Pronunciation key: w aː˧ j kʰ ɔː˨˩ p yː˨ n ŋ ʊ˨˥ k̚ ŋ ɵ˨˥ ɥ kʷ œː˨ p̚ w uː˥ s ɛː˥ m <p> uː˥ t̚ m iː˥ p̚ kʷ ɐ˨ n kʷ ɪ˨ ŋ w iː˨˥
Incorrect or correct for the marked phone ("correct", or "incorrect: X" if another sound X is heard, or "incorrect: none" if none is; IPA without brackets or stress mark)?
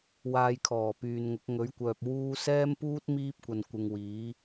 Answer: correct